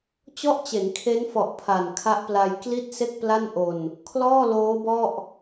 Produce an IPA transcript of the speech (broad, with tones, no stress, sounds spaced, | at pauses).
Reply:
t͡ɕ ɔ˥˩ ʔ t͡ɕ e˩˦ n kʰ e˦˥ n f ɔ˨˩ ʔ pʰ a˨˩ n kʰ a˦˥ ʔ p l a˧ j k l i˥˩ t̚ s e˥˩ k̚ p l a˥˩ n ʔ o˧ n | kʰ l ɔː˥˩ l oː˦˥ b ɔ˥˩ ʔ